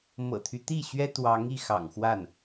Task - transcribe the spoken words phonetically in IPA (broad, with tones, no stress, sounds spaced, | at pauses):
m ɤ̰˨˩ t̪ʰ y˦ t̪ i˥˩ ɕ ɥ ɛ˥ t̪ w ɑ˧˥ ŋ i˥˩ x ɑ̰˨˩ ŋ x w a˥˩ n